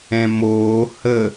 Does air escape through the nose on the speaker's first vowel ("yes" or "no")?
yes